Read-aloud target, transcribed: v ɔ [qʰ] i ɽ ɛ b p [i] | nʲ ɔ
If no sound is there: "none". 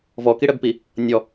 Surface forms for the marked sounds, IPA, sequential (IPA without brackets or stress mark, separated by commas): k, i